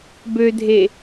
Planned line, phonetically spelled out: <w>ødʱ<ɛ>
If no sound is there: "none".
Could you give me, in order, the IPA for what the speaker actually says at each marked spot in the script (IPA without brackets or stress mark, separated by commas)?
b, e